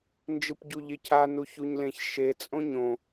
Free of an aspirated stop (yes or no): no